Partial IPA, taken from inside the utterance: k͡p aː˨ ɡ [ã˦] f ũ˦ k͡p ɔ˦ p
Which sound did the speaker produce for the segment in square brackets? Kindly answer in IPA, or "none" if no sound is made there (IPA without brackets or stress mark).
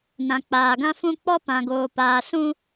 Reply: ã˦